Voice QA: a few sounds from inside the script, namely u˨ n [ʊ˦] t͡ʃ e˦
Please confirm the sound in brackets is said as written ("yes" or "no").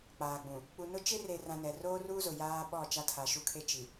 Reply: yes